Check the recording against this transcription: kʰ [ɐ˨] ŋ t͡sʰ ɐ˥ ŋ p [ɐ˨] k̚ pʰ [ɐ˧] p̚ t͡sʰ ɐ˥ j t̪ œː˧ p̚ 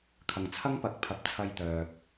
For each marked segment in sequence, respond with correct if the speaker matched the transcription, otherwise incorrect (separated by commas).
correct, incorrect, incorrect